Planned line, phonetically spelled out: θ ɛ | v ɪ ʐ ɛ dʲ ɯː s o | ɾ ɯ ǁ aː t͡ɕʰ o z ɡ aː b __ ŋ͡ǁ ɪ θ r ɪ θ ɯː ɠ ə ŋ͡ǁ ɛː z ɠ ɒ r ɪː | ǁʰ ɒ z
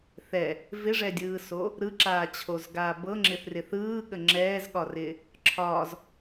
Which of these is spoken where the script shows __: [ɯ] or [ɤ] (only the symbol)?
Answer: ɤ